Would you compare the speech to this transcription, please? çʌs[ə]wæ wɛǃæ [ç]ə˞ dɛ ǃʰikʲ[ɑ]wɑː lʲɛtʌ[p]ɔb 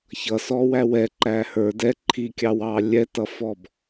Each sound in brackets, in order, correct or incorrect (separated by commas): incorrect, incorrect, correct, incorrect